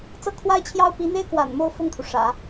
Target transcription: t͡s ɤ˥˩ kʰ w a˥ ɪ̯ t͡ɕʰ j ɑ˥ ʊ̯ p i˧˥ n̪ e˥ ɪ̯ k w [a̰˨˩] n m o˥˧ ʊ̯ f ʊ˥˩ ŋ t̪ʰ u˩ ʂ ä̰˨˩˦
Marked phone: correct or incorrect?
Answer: correct